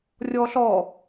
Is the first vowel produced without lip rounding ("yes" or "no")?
no